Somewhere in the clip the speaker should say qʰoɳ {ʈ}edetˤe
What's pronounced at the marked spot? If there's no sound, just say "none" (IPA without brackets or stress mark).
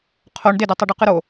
d